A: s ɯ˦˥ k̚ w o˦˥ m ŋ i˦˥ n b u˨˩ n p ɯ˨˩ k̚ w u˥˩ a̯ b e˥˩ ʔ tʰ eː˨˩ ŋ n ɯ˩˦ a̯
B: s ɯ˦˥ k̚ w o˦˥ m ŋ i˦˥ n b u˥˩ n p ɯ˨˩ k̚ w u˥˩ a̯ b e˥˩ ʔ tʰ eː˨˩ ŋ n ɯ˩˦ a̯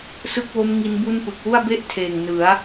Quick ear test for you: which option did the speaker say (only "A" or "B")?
B